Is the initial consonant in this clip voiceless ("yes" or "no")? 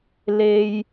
no